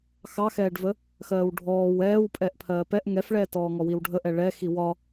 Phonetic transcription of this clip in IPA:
x ɑ x ɛː ɖ v ə | x ɜː w ɖʱ ɔː w ɛː w pʼ ɛ ʔ pʰ ɜː p ɛ ʔ ŋ ɛ f ɭ ɛː t ɔː ŋ ɔ w i w ɖʱ ə ʔ ɛ ɭ ɛ x i w ɒ

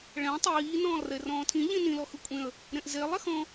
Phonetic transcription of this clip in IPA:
ɭ ɛ̃ tˤ iː n ɔ̃ː lˠ r e r ɔ̃ː tʰ ĩ ʎ ĩ n ĩ l ɔ x ɯ kʷʼ ẽ ə̯ | ɾ ẽ ʔ z e lˠ ɛ x ɔ̃

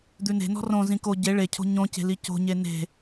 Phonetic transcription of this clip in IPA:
d̪ ʉ n e̤ n ɔ̤ r õ z ĩ k o ɟ e ɭ e cʰ o̤ ɲ õ c e̤ l i c o̤ ɲ e n e̤

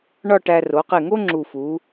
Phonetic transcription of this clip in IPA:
ɳ ɒ˥˧ ʈ æ˧ r o˩˧ q e˧˩ ŋ o˥ ŋ͡ǁ u˧˩ f u˩˧

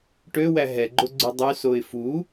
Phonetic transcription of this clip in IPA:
ʈ ø w æ ɦ ɛ ɡ͡ǃ o ɡ͡ǀ ʉ dˤ y s o ɪ̯ f u

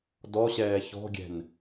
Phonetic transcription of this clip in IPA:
d ɔ ɕ ɛː ç ɔ̤ ɡʲ ɛ̤ n

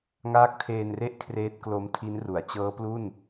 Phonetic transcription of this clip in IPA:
ŋ aː˦˥ k̚ tʰ eː˧ n r e˥˩ ʔ kʰ r eː˦˥ t̚ k l o˦˥ m tʰ i˦˥ n r u˩˦ a̯ t͡ɕ ɤː˦˥ p l u˥˩ n

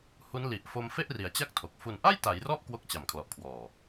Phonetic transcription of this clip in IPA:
h u˦˥ n l i˨˩ ʔ f o˧ m f e˥˩ ʔ r i˩˦ a̯ t͡ɕ a˥˩ k̚ tʰ o˨˩ k̚ f u˨˩ n ʔ a˥˩ j t a˩˦ j r ɔ˦˥ ʔ k w o˦˥ k̚ t͡ɕ a˨˩ m kʰ l ɔ˨˩ ʔ kʰ w ɔː˨˩

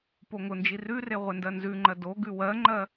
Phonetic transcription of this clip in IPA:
p o ŋ ʊ n d͡ʒ i r ʉ r e ʁʷ e n d ɜ n z ʉ ŋ͡ǃ ɜ d o ɡ ʉ w ɜ ŋ͡ǃ ɜ

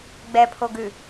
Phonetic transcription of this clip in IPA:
ɡ͡b ɛ pʰ o ɡ ʉ

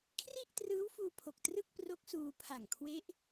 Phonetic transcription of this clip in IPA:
kʰ r i˥˩ ʔ t r ɯː˦˥ w f uː˧ pʰ o˨˩ k̚ t r ɯ˥˩ k̚ p r o˦˥ k̚ s uː˧ pʰ a˨˩ ŋ kʰ w e˦˥ ʔ

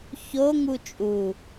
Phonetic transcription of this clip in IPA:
ç o ŋ u t͡ʃʼ u

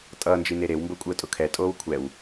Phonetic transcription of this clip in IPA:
tʼ ʌː n d͡ʒ i n e ɾ e w m b o kʷʼ əː tʼ ʊ kʰ ɛ tʼ oː w kʷʰ ɛ w

